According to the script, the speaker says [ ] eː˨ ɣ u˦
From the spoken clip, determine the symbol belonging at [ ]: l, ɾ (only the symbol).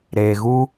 ɾ